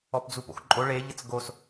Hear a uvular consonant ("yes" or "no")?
no